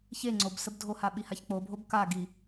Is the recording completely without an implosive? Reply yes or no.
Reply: no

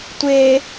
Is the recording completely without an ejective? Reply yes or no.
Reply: yes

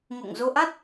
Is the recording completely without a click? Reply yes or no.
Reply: yes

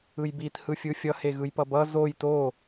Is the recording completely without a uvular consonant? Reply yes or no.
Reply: yes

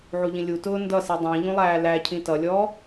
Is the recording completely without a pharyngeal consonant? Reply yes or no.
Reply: no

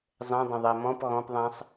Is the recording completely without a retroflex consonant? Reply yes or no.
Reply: yes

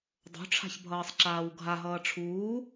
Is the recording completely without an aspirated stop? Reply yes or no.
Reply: no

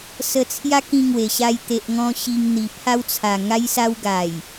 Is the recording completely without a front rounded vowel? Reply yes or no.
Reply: yes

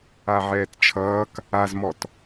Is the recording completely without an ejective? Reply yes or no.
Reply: yes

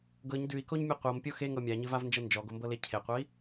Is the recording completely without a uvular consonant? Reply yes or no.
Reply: no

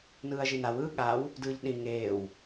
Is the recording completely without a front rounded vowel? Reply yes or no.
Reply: yes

